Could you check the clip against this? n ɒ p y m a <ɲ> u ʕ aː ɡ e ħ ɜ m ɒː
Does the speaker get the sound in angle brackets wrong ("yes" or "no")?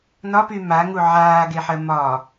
yes